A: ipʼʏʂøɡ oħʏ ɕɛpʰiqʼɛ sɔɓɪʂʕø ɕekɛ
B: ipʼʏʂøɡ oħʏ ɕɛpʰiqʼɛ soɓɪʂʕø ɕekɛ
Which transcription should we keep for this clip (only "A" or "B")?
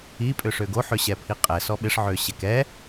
A